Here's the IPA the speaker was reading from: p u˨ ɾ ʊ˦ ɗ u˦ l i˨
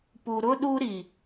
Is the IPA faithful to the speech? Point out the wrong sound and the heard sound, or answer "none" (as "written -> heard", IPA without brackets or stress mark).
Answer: l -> ɾ